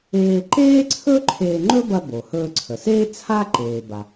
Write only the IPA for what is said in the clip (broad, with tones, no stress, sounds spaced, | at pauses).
eː˧ ǃ eː˥ ǀʰ ɵ˥ ǃʰ eː˧ ŋ͡ǃ ɵ˥ b ɐ˧ b o˩ h ɵː˧ ǀʰ ə˩ s eː˥ t͡sʰ a˥ ǃ eː˩ b a˩